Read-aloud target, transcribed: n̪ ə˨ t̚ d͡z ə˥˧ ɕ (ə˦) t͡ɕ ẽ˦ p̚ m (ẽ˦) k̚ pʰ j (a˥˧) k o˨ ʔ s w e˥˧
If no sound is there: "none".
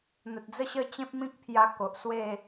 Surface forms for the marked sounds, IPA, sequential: ə˦, ĩ˦, a˧

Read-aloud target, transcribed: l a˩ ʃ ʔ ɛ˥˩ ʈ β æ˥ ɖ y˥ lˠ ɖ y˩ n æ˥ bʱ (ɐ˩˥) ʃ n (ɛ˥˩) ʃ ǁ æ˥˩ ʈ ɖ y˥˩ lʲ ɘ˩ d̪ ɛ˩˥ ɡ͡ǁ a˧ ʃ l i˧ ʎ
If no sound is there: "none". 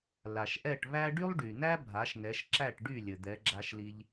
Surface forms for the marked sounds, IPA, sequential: a˩˥, ɛ˩˥

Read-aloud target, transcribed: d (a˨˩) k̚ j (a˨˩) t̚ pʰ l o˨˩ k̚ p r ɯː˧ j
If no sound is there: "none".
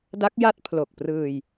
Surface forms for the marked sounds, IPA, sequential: a˦˥, a˦˥

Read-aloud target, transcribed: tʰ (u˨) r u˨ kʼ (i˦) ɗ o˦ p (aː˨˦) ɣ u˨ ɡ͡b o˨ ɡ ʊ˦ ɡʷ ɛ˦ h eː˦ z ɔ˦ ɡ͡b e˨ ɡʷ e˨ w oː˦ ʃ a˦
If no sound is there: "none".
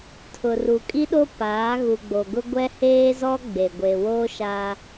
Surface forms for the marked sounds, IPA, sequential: ʊ˨, i˦, aː˨˦

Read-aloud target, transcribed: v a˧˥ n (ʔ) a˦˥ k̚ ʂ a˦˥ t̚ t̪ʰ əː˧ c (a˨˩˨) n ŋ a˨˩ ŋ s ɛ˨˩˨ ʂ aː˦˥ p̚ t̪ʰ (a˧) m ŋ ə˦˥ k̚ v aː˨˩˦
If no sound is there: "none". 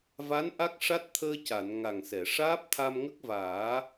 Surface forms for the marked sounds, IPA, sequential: ʔ, a˨˩˨, a˧

